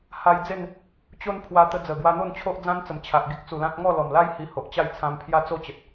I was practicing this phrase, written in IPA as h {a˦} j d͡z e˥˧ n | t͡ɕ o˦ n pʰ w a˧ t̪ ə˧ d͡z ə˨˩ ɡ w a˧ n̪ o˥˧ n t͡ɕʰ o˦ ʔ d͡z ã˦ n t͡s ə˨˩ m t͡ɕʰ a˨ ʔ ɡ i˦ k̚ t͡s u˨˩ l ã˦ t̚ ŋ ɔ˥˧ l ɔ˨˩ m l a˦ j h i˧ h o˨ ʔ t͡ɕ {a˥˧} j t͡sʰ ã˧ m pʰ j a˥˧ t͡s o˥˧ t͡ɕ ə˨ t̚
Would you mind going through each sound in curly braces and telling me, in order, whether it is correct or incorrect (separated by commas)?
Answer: incorrect, correct